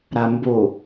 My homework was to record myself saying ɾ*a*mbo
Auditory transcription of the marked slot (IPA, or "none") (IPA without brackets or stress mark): a